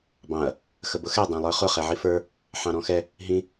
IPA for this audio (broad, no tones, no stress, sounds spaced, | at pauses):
b ɑ̃ ɐ̯ | x ə b ʊ x ɛ dˤ æ̃ lˠ ə˞ χ ʊ χ ɛ ʕ i f ə˞ | ħ ɑ̃ ɾ ɔ̃ x ɛ | ɦ ĩ